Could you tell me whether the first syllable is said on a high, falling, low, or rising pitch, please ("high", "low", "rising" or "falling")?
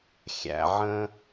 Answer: low